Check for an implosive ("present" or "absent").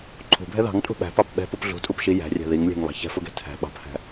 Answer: present